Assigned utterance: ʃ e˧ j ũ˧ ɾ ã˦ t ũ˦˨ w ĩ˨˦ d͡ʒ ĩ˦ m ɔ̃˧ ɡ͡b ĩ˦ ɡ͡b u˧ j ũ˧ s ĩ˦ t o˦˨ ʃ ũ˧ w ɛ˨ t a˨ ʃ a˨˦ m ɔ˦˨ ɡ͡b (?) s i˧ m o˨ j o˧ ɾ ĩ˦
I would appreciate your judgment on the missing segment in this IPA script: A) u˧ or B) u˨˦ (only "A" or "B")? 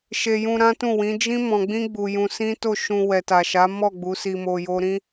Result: B